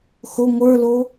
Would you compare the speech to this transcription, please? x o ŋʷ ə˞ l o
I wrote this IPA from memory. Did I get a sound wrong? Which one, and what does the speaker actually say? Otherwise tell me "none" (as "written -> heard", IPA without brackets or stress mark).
none